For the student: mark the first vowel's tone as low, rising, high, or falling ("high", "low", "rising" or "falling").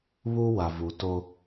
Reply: high